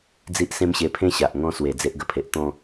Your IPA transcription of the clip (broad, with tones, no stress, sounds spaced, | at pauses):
d͡z i˦ ʔ s ẽ˦ m ɕ e˧ pʰ ẽ˦ ɕ a˨ ʔ ŋ ɔ̃˥˧ s w e˨˩ d͡z e˦ ʔ ɡ ə˧ pʰ e˨ ʔ t̪ ɔ̃˥˧